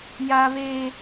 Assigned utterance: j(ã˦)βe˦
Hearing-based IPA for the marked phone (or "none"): a˦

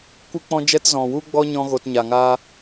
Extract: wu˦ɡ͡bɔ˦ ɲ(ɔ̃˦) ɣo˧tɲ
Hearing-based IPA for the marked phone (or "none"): ɔ̃˦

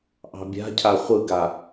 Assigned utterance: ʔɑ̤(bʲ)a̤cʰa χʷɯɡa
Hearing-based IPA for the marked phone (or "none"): bʲ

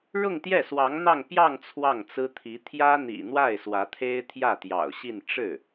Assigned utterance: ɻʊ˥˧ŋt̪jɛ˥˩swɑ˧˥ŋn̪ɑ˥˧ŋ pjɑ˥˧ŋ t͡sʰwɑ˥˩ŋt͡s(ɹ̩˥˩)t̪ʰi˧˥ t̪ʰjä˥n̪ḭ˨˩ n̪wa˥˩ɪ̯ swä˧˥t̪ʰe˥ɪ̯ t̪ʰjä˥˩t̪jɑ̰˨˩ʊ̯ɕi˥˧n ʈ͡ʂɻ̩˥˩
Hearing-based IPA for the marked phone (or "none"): ɹ̩˥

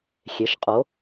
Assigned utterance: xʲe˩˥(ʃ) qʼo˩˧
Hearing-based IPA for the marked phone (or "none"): ʃ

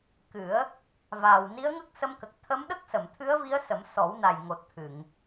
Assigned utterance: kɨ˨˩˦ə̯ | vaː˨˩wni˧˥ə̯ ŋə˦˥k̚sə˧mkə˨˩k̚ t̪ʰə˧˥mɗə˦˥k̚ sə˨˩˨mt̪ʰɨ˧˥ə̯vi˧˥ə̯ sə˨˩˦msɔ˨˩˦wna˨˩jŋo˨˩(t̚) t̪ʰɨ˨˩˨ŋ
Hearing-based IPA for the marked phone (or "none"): t̚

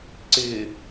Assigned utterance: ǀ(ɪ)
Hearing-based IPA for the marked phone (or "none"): ɪ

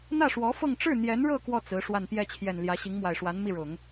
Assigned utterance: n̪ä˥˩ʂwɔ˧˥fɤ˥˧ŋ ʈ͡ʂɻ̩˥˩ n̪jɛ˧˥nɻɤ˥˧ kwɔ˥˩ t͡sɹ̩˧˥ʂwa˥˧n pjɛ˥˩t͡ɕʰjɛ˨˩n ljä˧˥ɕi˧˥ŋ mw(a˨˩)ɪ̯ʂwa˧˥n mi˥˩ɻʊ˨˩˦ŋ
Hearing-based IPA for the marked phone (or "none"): a˨˩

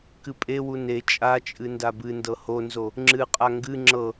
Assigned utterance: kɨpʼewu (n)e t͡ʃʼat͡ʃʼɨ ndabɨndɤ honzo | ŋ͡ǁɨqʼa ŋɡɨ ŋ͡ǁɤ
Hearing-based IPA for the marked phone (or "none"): n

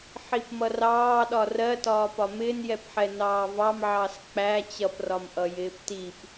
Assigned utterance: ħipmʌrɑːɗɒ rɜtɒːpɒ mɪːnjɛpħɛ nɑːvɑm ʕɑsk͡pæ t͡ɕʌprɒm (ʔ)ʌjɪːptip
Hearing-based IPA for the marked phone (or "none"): ʔ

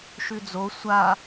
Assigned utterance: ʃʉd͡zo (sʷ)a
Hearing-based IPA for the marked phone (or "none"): sʷ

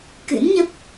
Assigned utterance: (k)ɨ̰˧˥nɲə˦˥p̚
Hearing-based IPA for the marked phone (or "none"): k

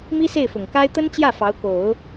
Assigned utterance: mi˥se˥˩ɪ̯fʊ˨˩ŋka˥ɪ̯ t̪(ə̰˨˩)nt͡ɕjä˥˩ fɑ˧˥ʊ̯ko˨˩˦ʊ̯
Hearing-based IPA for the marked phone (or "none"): ə˥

